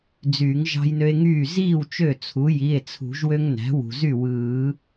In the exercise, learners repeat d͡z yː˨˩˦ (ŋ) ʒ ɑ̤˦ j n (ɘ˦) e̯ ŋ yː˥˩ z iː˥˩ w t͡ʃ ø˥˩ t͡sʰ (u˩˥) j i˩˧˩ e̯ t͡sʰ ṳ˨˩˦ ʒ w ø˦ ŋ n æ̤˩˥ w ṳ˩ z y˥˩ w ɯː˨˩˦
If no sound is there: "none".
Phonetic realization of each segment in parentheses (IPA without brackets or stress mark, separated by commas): ŋ, ø˦, u˩˥